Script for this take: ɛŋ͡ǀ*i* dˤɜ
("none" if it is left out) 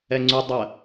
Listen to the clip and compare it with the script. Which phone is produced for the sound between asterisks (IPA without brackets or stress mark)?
y